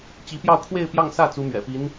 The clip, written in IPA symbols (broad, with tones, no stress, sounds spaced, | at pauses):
t͡ɕ i˧˥ p j ɑ˥˧ ʊ̯ kʰ w e˥˧ ɪ̯ p j ɑ˥˧ ŋ s ä˥˩ t͡s u˥ m ɥ ɛ̰˨˩ p i˧˥ n